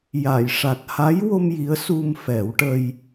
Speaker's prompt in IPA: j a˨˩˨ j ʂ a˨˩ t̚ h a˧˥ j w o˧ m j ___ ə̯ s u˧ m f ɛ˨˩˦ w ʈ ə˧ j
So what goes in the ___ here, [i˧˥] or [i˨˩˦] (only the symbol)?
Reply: i˧˥